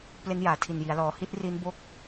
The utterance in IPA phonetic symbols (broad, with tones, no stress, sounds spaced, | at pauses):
p l e˦˥ n j aː˩˦ tʰ i˨˩ n j i˩˦ a̯ l ɔː˩˦ h i˦˥ t̚ r i˦˥ n b o˥˩ k̚